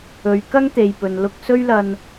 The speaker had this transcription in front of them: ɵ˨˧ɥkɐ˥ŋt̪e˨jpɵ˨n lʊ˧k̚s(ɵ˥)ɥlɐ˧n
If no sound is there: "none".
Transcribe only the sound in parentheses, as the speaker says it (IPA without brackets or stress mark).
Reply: ɵ˥